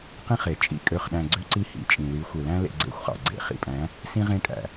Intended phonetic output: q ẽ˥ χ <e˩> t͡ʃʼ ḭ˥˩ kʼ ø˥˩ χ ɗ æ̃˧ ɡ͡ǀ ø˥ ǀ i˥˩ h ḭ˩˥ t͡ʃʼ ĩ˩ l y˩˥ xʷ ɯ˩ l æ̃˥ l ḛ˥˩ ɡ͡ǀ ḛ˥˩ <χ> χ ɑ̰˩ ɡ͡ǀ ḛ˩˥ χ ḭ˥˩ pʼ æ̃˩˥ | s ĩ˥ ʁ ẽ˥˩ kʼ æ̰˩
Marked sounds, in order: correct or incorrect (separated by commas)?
correct, incorrect